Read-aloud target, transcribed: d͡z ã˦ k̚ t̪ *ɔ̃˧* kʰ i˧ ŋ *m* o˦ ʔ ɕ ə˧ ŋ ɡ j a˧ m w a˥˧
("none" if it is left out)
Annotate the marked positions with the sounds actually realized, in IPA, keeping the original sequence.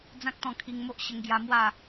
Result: ɔ̃˧, m

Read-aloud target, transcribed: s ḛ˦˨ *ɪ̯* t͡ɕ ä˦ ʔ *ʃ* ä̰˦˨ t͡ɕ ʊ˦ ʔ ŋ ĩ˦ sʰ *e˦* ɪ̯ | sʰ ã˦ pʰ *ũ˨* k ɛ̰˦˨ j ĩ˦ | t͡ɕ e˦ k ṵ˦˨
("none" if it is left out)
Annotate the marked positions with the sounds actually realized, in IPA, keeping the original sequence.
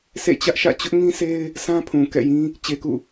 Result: none, ʃ, e˦, ũ˨

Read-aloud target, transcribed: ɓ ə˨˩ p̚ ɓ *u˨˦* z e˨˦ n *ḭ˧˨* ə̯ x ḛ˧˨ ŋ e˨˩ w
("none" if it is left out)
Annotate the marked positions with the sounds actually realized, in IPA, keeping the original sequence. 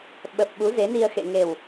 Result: u˨˦, i˧

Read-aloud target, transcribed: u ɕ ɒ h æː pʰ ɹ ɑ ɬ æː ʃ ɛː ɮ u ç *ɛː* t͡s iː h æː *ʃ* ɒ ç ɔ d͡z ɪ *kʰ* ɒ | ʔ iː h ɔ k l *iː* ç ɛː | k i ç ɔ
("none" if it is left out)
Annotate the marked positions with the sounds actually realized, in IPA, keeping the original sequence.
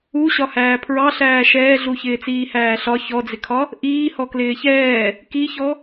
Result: ɪː, ɬ, kʰ, ɪː

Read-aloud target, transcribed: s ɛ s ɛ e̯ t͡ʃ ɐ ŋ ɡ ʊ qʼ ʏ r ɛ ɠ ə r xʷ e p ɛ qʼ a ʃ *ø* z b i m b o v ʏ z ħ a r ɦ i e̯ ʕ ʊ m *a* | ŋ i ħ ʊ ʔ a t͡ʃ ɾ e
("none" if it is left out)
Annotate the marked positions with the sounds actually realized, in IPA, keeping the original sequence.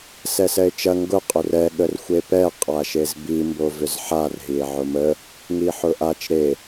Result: e, ə

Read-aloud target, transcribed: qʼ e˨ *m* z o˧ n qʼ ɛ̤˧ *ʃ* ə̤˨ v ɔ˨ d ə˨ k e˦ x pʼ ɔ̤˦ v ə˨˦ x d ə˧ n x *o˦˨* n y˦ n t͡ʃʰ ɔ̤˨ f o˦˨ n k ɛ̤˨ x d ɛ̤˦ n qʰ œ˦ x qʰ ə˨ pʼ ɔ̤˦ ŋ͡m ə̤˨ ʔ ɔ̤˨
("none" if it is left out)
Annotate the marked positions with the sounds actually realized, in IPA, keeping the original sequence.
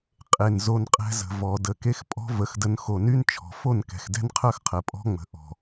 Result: n, z, o˨

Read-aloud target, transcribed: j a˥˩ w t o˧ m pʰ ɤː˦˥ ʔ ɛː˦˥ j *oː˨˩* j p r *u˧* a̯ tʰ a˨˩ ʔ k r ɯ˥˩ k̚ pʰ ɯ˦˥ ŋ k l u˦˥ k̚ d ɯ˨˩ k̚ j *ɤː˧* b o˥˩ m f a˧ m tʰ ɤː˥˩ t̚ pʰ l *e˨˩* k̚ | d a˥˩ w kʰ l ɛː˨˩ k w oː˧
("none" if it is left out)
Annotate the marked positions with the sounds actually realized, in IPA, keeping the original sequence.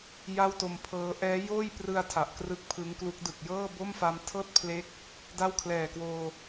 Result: oː˥˩, ɯ˧, ɤː˥˩, e˦˥

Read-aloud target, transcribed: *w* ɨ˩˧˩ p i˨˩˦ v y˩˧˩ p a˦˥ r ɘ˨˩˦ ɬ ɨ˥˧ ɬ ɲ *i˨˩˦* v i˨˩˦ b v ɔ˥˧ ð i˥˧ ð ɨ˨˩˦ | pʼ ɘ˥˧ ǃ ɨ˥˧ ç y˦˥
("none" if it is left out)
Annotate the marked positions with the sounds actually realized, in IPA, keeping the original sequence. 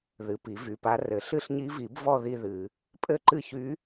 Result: ð, i˦˥

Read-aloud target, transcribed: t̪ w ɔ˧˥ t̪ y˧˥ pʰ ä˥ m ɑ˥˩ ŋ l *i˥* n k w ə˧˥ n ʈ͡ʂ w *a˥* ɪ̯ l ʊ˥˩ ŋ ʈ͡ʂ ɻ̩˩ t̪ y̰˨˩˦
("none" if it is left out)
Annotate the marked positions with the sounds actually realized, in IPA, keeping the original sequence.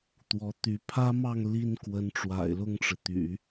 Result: i˥, a̰˨˩

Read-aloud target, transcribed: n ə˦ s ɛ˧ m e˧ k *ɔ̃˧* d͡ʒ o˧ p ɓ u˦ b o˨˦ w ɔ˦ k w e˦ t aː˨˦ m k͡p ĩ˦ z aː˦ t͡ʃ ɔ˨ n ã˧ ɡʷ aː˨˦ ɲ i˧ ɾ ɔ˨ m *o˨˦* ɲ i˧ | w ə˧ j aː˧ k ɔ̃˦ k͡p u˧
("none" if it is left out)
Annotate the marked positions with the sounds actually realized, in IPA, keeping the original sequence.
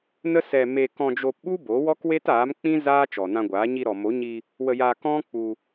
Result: ɔ̃˧, o˨˦

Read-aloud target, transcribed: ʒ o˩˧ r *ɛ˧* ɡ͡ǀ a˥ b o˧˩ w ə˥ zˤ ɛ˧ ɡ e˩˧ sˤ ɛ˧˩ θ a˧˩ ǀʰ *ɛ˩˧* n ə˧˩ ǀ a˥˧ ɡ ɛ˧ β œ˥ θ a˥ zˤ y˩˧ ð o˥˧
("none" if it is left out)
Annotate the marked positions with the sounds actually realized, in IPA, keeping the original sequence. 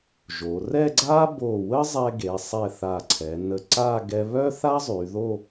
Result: ɛ˥˧, ɛ˩˧

